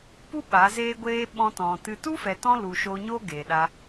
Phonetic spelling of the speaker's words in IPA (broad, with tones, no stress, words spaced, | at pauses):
pu˦ ɓa˨˦zeː˦ɡʷeː˦ ɓɔ̃˧ tɔ̃˨ tɨ˧ tu˦fɛ˨ tɔ̃˦lu˨ʃoː˧ɲoː˦ ɡeː˨ɗa˧